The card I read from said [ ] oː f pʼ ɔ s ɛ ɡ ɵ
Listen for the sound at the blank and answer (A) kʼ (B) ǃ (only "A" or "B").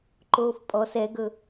B